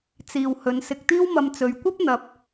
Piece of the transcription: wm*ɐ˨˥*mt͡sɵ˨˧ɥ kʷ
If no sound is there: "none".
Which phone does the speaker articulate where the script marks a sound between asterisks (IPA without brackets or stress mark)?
ɐ˧